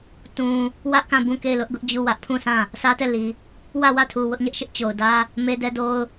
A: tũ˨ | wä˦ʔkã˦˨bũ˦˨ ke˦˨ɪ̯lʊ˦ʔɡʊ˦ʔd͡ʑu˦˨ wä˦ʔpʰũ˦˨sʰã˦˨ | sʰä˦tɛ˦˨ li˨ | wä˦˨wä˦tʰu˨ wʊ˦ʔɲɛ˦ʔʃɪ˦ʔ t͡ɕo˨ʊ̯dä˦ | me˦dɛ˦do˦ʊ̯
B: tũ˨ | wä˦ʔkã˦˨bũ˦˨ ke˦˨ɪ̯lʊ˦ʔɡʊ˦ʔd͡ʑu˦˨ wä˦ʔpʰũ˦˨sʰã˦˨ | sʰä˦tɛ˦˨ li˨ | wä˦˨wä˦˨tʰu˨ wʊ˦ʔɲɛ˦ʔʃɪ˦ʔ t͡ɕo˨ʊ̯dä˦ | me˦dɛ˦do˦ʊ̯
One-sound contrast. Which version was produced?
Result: B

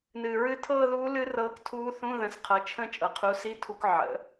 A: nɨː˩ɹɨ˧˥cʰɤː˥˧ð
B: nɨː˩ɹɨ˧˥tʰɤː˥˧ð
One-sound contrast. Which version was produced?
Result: B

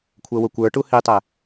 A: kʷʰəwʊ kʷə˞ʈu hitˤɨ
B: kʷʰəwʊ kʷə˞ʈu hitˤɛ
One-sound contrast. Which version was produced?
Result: B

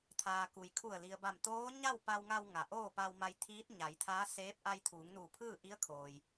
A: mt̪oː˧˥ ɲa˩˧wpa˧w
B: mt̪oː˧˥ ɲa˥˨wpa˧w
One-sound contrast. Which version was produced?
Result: B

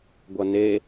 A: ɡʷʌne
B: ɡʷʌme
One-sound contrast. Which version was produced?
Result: A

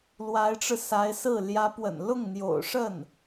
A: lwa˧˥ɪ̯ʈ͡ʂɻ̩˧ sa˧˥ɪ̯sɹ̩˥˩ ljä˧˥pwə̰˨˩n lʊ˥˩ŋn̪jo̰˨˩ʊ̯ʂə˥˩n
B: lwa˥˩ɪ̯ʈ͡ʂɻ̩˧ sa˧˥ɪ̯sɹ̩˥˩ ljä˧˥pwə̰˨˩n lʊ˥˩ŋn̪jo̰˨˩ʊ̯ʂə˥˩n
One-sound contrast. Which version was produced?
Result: A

